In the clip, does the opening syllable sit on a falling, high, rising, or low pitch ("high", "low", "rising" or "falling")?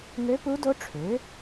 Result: rising